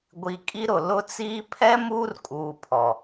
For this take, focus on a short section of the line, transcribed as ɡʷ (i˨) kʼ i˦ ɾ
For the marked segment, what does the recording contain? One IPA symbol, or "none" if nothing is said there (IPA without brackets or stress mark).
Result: i˨